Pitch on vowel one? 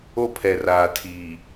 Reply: high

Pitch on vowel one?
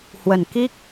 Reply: low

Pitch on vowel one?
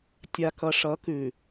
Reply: low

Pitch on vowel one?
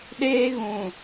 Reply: high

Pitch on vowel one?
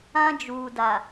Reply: high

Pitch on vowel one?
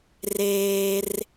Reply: high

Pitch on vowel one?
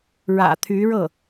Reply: low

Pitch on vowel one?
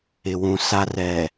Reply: low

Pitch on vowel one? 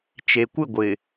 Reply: low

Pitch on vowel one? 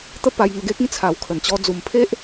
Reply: falling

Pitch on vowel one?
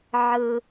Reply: high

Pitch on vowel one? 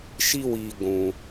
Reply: high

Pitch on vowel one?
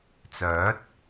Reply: rising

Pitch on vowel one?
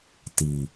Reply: low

